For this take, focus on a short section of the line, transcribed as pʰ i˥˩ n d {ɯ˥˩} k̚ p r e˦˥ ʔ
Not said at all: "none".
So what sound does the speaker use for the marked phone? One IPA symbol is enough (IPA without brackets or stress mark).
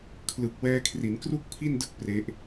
ɯ˥˩